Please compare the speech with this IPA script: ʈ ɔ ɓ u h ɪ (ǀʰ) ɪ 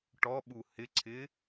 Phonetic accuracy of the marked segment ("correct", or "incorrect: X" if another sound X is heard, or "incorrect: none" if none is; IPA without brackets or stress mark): correct